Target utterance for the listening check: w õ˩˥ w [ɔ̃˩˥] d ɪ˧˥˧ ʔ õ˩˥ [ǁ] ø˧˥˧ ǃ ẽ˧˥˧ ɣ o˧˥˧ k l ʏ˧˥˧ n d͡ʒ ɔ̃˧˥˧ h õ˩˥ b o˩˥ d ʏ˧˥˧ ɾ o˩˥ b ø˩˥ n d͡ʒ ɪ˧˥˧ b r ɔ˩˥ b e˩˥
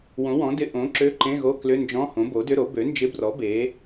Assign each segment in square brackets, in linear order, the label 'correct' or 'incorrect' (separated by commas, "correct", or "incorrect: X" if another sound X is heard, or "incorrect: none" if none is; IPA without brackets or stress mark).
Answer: correct, correct